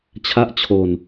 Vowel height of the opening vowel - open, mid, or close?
open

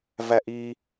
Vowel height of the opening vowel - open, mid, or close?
open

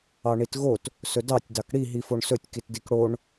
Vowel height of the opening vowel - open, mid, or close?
open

